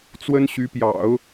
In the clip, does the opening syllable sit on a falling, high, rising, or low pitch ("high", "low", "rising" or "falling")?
high